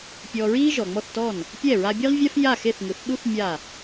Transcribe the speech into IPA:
pʲɔ˧ ɹiː˥ʒɔ˩ŋ͡mɔ˥˩θtɔ˥˩n | pʲɛ˥˩ ɹa˧bʲe˥ʁvʲa˥f ja˥˩xe˥˩θ ŋɯ˩˥θ ɗu˥θ mʲa˥˩

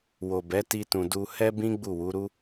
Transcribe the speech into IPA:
wo˨bɛ˨˦ti˧tũ˨ du˧ hɛ˦bĩ˦ ɡ͡bu˦˨wu˨˦ɾu˦

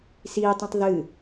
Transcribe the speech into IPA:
sitˤĩtˤ ðɨ

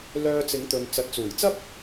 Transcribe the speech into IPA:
lœː˧t͡sɪ˨˥ŋt̪ɵ˨n t͡sɐ˨t̚t͡suː˨˩jt͡sɐ˥p̚

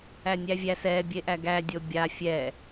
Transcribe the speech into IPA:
ænʲævʲæ sɛ bʲeʔæɡæ dʲobʲa fʲɛ

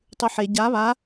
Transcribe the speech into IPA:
tˤʉħe ɟa βa

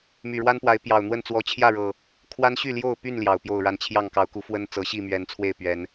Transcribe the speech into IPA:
my˨˩ɻwa˦npwa˨˦ɪ̯ pjɑ˨˩ʊ̯n̪wə˥˨n t͡swɔ˨˦t͡ɕʰjä˥˨ɻɤ˨˩ | kʰwa˦nɕy˥˨ ljo˥˨ʊ̯py˥˨n ljɑ˨˩ʊ̯pjo˥˨ʊ̯ɻa˥˨n t͡ɕʰjɑ˥˨ŋ kɑ˨˦ʊ̯ku˨˦fwə˦n t͡sɤ˨˦ɕi˥˨mɥɛ˨˦nt͡sʰwe˥˨ɪ̯ pɥɛ˨˦n

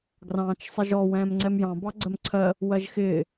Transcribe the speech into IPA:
ɡrɑ̃ːt͡ʃsˤɪʒɔ wɛ̃ːmŋ͡ǀɛmjɑ̃ bɑɡ͡ǀɜmǀʰɜ | wɜʒxɪː

